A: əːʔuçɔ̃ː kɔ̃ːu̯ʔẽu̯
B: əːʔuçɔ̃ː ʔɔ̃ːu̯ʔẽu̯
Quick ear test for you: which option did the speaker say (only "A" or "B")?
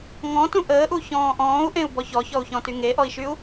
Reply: B